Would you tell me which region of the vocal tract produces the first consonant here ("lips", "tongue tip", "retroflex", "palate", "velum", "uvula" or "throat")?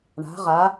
retroflex